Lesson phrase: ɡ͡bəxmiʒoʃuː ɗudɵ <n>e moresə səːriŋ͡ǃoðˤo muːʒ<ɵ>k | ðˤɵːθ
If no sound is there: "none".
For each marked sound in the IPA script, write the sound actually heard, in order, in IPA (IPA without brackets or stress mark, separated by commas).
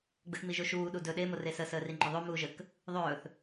ɗ, ə